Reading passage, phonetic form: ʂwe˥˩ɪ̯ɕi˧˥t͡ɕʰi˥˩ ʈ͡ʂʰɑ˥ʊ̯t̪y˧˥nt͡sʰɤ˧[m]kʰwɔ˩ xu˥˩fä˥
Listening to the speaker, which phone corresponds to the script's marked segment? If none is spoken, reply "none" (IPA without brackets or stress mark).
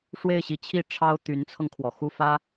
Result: ŋ